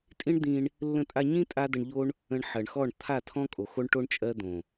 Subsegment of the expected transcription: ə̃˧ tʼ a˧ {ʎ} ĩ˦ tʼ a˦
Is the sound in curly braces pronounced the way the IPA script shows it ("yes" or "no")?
no